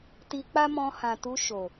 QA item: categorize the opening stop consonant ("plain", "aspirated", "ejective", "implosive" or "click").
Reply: plain